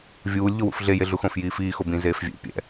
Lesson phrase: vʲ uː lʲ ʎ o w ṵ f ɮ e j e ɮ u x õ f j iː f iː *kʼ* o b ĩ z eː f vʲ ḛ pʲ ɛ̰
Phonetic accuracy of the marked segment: incorrect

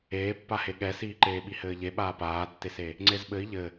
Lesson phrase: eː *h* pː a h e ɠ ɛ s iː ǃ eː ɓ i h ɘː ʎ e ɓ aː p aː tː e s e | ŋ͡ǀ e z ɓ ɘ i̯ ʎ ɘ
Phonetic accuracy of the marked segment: incorrect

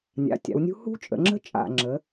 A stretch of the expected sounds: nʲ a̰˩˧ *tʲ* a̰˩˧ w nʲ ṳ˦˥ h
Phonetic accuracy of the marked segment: correct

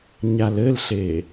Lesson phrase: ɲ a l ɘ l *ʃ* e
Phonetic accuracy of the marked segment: incorrect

